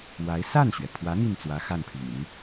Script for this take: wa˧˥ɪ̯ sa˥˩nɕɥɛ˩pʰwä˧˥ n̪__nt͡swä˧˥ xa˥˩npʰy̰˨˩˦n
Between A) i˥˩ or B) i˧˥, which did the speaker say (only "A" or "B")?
A